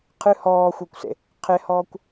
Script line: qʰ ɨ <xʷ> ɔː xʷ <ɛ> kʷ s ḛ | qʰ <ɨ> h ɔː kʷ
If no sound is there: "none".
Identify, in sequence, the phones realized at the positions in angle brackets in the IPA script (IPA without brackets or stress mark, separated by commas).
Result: h, ɛ, e